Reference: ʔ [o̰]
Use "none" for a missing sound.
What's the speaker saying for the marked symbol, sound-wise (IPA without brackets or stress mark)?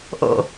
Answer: o̰